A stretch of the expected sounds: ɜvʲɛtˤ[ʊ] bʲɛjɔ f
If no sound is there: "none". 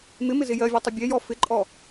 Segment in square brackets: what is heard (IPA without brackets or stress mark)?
ʊ